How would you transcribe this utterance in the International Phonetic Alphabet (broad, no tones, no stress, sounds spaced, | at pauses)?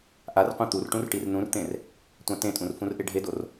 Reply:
ʔ a r qʷ ẽ t̪ u r ʈ ũ r ʈ i r n ũ r t̪ ẽ r | tʷ ã t ẽ tʼ ũ r f ũ r ʔ e ɖʱ e d o r